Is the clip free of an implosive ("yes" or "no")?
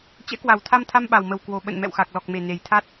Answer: no